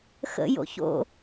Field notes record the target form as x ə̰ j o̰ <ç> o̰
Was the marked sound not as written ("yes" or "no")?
no